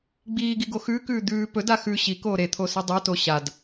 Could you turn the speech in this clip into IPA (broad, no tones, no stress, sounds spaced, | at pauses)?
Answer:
ɡ͡b iː ɡ i ɡ o x ʉː k ʉː d̪ ʉː p ɵ d a x ʉ ɕ i k oː ɾ e t̪ʰ o s ɨ dˤ o t o ɕ a d